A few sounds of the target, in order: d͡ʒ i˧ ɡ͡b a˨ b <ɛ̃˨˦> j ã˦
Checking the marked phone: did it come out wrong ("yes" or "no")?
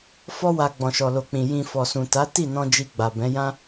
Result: no